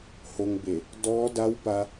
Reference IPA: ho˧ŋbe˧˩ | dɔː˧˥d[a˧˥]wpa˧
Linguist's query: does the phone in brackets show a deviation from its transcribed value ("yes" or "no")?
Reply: no